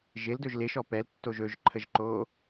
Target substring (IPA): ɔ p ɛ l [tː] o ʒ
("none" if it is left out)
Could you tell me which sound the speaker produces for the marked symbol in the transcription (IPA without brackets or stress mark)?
tː